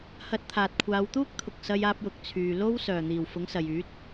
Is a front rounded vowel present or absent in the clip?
present